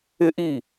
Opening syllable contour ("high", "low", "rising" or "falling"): high